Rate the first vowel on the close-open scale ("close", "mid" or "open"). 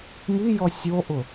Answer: close